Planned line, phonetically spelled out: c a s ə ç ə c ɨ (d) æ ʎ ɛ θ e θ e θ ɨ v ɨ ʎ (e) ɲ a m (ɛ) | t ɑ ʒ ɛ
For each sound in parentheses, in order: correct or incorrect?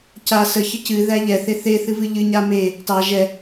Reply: incorrect, incorrect, incorrect

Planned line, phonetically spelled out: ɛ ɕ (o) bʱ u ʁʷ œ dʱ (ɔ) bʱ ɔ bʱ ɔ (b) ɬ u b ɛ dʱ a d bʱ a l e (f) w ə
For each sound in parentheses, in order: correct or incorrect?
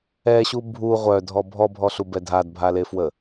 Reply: incorrect, correct, incorrect, correct

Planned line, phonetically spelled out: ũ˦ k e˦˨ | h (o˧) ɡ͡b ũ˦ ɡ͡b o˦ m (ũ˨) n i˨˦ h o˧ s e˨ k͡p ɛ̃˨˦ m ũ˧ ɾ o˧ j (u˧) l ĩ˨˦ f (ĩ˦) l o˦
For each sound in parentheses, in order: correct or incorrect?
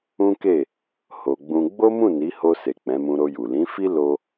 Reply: correct, incorrect, incorrect, incorrect

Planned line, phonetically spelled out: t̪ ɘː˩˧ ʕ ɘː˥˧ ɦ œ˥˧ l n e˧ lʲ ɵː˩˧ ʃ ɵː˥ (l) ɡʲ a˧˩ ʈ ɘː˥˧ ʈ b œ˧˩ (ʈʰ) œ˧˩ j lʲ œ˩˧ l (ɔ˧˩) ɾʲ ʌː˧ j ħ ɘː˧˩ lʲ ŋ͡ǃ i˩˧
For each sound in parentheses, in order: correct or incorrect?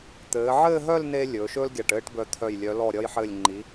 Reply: correct, incorrect, correct

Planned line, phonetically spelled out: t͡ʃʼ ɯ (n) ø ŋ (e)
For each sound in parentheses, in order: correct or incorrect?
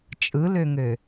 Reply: incorrect, incorrect

